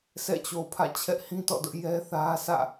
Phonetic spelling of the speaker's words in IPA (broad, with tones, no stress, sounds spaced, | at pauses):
sʰ ɛ̰˦˨ t͡ɕ o˨ pʰ ä̰˦˨ t͡ɕʰ ɛ˦ ʔ h ĩ˦ t ɔ̰˦˨ d ʊ˦ ʔ j ɛ˦ θ ä˦ sʰ ä̰˦˨